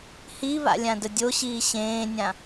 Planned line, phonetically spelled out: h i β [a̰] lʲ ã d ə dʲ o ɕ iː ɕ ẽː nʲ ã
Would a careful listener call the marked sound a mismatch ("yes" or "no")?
no